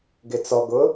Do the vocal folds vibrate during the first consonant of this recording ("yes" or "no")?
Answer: yes